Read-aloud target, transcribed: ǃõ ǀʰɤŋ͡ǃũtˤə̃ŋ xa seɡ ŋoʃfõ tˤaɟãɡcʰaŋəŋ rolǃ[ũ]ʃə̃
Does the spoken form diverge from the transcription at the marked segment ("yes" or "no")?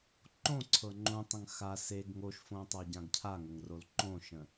yes